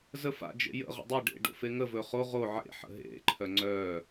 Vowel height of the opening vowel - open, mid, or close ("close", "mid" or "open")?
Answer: mid